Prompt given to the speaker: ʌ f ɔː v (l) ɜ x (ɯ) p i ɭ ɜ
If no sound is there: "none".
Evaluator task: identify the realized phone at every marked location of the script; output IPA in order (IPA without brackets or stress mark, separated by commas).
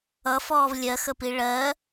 lʲ, ə